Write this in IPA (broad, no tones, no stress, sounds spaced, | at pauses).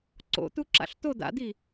ǀ o̰ t̪ u ǁ a̰ ɬ t̪ o d̪ a̰ d̪ i